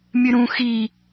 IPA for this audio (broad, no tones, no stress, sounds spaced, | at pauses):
mʲ ɨ ɾ ũ x i